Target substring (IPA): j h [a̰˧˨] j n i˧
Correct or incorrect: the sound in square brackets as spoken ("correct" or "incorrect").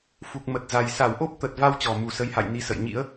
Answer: correct